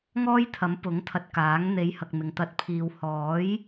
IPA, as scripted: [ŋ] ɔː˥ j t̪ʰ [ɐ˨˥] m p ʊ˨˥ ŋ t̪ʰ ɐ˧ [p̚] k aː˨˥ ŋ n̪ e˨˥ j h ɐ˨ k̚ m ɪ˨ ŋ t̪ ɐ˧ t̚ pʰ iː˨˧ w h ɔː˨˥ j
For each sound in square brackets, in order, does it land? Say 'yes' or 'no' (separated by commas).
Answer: yes, yes, no